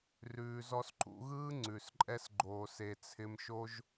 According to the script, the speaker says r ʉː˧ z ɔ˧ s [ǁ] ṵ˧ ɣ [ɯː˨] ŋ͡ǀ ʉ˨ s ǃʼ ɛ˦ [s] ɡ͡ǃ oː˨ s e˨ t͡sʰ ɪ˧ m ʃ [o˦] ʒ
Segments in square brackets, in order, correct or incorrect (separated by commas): incorrect, incorrect, correct, correct